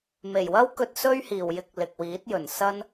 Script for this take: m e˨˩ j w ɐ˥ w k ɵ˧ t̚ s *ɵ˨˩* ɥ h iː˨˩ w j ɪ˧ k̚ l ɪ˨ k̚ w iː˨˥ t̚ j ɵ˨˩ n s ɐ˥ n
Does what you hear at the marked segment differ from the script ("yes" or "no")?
yes